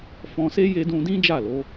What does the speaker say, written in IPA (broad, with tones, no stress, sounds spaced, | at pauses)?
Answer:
f ɔ̃˧ s e˦ j e˦ d ũ˦ d ĩ˦ d͡ʒ a˦˨ l o˨˦